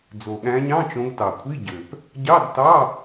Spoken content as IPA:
d͡z o˨˩ ɠ æ̃˨˦ ɲ ɑ̃˧˥˧ t͡ʃ õ˨˦ ɡ t ɑ˨˩ kʷʰ i˧˥˧ ɟ ø˨˩ p | ɟ ɑ˧˥˧ d t ɑ˧˥˧

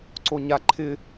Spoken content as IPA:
ǀ o ɲ a ǃʰ ɪ

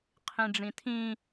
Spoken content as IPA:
qʰ ĩ ɖ͡ʐ ĩ tʰ ĩ

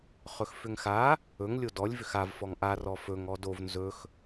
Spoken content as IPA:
χ ɵ x f ʏ ŋ x a | ɵ ŋ lʲ o d ɔ lʲ v ʏ x a v f ɔ ŋ ʔ a r ɔ f ɵ ŋ ɔ d o v n z ɵ x

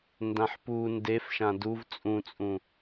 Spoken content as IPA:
n d ã ħ p u n d e f ʃ ã d u v t͡sʼ ũ t͡sʼ ũ

